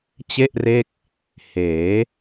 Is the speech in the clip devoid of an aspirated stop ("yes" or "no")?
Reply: yes